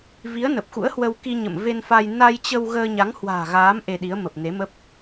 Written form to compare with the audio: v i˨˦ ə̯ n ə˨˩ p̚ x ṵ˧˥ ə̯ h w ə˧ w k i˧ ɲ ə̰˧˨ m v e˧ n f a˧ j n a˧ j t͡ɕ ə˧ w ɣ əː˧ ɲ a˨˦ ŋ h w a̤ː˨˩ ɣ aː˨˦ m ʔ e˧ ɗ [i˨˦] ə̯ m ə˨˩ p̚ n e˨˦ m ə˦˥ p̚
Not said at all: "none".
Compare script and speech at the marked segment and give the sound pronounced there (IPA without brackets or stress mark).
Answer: i˨˦